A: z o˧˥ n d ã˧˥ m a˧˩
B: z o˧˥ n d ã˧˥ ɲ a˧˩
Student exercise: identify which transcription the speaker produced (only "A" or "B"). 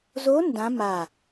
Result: A